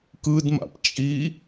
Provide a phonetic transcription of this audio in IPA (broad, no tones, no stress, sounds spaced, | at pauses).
k ɯ d m a̰ p t͡ʃʼ i